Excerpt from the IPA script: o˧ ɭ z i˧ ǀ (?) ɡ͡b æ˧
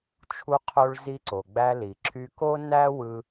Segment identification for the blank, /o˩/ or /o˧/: o˩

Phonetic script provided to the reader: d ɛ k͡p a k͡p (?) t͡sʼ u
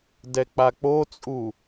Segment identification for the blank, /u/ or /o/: o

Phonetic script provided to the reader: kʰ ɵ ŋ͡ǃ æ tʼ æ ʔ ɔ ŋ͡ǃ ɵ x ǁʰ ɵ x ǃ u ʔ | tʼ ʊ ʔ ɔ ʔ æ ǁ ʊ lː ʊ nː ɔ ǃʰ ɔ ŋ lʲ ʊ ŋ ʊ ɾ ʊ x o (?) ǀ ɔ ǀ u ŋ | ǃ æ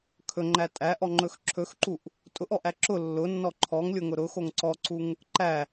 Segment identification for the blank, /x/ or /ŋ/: ŋ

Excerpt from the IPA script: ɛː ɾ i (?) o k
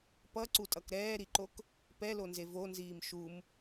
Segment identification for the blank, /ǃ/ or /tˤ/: ǃ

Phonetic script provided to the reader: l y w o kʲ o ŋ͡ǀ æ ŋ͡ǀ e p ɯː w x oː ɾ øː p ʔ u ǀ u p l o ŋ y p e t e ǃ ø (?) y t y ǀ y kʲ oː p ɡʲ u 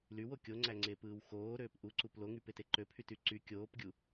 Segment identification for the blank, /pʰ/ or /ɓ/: pʰ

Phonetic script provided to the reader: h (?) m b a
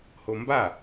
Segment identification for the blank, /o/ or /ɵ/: o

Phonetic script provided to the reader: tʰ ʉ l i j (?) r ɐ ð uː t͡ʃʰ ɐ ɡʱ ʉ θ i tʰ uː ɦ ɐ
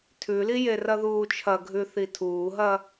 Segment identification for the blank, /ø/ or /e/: e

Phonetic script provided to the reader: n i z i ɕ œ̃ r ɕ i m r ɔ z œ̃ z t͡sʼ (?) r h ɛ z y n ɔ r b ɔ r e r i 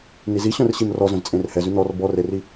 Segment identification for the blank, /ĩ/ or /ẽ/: ẽ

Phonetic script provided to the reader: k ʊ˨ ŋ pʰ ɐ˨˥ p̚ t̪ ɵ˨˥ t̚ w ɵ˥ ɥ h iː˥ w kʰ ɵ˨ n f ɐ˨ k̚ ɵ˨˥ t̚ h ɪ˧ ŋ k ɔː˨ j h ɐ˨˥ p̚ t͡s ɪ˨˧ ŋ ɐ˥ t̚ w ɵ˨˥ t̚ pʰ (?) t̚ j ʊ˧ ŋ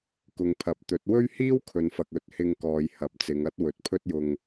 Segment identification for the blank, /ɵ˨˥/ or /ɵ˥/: ɵ˥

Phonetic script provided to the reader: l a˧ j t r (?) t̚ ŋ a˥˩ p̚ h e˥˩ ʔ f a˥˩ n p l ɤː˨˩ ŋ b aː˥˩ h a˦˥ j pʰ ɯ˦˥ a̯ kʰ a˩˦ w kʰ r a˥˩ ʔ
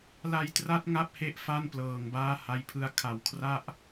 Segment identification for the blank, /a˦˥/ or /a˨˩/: a˦˥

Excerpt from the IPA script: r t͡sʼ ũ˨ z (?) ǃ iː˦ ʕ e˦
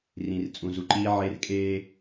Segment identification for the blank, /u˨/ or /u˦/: u˨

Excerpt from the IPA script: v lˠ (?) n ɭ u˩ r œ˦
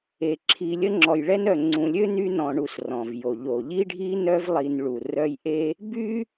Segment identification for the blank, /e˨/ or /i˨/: i˨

